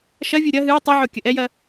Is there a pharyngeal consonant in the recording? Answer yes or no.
yes